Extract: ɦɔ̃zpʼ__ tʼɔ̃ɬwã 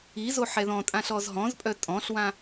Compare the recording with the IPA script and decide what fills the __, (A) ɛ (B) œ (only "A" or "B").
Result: B